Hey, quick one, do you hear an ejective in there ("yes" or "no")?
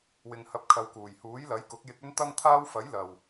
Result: no